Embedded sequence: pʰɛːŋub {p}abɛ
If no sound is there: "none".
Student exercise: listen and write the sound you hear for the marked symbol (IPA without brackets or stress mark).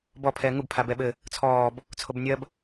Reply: pʰ